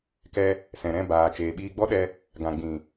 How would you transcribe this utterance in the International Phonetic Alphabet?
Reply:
k ɛ˧ | s ɛ̃˨ ɾ ɛ̃˦˨ b aː˨ t͡ʃ eː˨ ɓ iː˧ ɡ͡b ɔ˦ ɗ ɛ˧ | ɡ ã˨ ɡ͡b ĩ˨

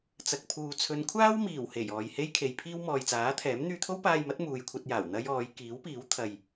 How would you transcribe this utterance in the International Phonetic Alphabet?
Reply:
t͡s ɐ˨ k̚ pʰ uː˨ t͡sʰ ɵ˨˧ n kʷʰ aː˥ w m iː˨˩ w h e˨˩ j ɔː˨ j h e˥ j kʰ e˨ j pʰ iː˥ w m ɔː˨ j t͡s aː˨˥ t̪ʰ ɛː˨˥ m n̪ yː˧ t̪ʰ o˥ w p aː˧ j m ɐ˨˥ t̚ m uː˨ j kʷʰ ɐ˧ t̚ j aː˨˩ w n̪ ɐ˥ j ɔː˨˧ j k iː˨˥ w p iː˨˥ w t̪ʰ ɐ˨ j

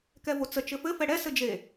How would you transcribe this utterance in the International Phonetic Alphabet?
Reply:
k ɛ v o t͡s ə t͡ʃ ɘ f ɘ f ɛ ɽ ɛ s ɘ d͡ʒ e

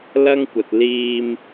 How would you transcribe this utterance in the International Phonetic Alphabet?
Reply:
l ɐ˥ ŋ kʷ ɐ˨ t̚ l iː˧ m

